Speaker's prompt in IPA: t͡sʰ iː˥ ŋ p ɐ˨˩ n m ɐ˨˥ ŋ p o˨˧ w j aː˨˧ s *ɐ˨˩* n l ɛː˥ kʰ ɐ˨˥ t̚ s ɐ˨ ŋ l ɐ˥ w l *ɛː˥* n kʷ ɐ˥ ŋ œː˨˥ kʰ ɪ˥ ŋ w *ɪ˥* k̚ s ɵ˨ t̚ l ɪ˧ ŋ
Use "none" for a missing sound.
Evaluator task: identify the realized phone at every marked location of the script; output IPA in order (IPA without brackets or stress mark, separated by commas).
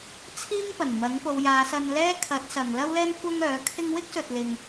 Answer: ɐ˧, ɛː˥, ɪ˥